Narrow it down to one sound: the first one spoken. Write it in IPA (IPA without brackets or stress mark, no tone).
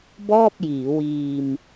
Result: b